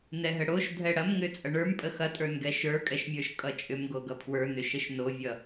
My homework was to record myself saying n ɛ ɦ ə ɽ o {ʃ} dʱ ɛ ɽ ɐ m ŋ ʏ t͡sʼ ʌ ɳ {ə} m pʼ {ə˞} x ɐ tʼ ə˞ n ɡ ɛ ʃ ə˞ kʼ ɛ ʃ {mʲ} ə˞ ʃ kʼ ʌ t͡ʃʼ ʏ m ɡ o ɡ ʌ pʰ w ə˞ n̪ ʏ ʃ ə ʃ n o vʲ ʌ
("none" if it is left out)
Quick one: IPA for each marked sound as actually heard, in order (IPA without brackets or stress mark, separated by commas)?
ʃ, ə˞, ə, mʲ